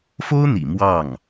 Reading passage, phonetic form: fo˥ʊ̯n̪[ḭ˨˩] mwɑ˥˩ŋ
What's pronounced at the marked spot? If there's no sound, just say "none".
ḭ˨˩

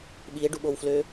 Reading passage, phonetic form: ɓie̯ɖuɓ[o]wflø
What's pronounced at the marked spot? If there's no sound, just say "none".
o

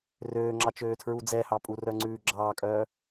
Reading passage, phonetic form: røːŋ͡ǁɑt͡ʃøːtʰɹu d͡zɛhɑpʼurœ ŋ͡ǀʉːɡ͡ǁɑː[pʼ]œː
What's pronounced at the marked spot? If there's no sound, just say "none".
kʼ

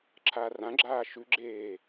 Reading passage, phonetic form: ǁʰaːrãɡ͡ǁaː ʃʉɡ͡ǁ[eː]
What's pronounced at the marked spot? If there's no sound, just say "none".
eː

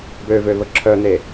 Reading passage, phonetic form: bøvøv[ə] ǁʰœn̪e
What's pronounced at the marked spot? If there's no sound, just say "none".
ə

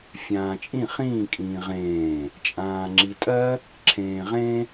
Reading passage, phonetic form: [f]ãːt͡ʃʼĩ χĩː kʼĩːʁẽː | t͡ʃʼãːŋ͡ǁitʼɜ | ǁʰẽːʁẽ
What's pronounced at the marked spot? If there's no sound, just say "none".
fʲ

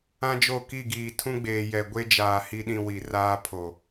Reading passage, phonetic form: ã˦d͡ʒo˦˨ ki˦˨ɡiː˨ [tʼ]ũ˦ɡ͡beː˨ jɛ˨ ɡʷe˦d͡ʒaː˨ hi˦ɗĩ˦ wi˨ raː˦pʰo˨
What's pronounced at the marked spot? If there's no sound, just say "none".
tʰ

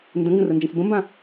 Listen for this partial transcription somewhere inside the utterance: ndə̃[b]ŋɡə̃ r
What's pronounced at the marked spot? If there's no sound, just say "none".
none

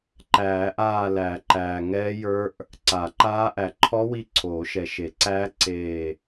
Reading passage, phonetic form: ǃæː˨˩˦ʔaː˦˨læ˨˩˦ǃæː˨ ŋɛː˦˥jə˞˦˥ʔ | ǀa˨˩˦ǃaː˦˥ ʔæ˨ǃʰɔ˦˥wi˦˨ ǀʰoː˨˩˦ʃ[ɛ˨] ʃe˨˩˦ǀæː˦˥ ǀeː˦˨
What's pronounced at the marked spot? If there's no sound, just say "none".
ɛ˨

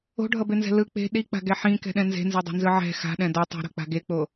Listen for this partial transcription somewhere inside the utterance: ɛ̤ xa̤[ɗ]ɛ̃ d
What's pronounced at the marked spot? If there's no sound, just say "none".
ɗ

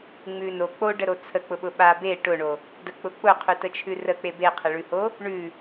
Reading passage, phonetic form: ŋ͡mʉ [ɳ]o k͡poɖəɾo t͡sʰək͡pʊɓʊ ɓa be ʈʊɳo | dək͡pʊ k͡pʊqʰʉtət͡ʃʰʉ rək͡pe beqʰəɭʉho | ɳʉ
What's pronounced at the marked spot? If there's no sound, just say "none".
n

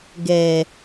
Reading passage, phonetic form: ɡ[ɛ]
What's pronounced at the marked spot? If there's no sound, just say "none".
ɛ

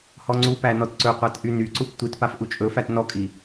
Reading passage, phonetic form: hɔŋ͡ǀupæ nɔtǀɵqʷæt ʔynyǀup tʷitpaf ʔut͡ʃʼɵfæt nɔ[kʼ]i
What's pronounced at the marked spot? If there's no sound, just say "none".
kʼ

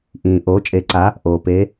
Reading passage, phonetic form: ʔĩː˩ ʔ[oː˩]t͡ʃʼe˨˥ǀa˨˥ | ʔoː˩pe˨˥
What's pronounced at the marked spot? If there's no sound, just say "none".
oː˨˥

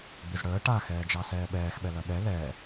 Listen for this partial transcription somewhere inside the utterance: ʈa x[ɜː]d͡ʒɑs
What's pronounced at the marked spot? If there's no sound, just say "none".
ɛː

